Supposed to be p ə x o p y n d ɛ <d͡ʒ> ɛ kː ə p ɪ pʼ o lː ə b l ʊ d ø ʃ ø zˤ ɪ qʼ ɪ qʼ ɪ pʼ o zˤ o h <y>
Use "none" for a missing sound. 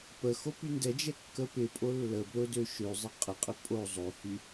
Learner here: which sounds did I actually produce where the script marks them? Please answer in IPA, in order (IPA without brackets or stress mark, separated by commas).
d͡ʒ, y